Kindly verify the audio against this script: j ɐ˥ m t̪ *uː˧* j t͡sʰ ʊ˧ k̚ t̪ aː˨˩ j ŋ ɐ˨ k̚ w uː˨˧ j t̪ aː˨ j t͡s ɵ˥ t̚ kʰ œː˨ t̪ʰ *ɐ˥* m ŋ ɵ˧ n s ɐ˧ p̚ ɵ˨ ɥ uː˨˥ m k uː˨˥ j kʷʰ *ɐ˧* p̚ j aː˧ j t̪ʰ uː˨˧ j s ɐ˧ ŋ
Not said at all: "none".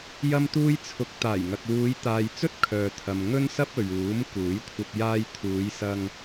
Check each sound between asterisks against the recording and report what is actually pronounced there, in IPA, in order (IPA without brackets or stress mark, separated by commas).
uː˥, ɐ˨, ɐ˧